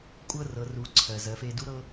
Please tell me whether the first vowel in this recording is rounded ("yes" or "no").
no